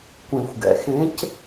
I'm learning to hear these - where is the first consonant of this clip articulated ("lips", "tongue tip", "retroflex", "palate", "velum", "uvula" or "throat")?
velum